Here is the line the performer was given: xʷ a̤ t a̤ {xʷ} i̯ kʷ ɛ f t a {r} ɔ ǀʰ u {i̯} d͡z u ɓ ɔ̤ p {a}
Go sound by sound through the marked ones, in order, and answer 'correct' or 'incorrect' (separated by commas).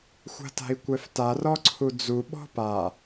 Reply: incorrect, correct, incorrect, correct